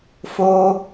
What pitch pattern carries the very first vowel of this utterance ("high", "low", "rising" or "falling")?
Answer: high